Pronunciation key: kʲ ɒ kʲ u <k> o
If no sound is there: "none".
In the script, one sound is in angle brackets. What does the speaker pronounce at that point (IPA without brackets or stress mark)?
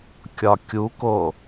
k